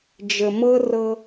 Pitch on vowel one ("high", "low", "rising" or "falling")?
low